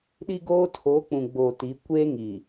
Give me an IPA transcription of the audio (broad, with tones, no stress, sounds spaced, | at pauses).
ɗ i˦ ɡ oː˦ tʰ oː˨˦ k͡p ũ˨ ɡ͡b oː˨ t i˨˦ kʷ eː˦ ŋ i˨